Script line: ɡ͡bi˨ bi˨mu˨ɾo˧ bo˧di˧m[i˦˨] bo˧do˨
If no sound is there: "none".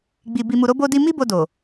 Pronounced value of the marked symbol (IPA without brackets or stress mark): i˦